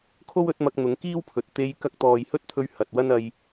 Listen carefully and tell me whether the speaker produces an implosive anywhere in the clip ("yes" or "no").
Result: no